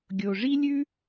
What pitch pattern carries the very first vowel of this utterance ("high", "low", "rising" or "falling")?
low